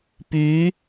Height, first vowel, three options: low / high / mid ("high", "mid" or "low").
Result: high